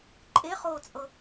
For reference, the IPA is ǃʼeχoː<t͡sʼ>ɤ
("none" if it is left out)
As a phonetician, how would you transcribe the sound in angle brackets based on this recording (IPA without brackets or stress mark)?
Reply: t͡sʼ